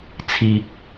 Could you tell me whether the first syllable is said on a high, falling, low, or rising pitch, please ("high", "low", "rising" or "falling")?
low